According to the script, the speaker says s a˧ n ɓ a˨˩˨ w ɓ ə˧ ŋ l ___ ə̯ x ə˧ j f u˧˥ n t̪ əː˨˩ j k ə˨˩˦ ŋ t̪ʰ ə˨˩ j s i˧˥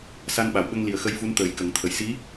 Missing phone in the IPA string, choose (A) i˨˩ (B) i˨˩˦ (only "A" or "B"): A